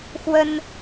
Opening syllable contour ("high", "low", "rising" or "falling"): high